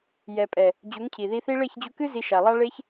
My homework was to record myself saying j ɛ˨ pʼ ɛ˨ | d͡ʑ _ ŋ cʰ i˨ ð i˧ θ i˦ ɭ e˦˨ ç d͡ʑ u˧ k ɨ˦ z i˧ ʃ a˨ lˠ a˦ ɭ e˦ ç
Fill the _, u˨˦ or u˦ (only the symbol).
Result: u˨˦